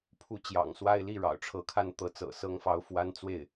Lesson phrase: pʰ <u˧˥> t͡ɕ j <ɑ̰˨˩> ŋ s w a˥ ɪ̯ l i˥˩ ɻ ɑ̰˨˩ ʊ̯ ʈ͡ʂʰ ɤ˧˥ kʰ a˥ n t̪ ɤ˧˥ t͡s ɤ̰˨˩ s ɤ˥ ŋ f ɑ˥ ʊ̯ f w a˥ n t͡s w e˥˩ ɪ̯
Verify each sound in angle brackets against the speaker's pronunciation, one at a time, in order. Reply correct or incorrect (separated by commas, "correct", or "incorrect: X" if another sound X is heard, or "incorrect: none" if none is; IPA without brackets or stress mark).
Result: correct, correct